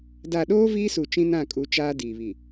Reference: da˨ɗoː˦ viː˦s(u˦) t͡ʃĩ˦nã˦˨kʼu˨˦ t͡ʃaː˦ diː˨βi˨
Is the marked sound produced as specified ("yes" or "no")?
no